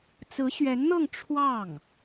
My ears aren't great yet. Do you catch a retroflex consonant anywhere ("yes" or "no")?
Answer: yes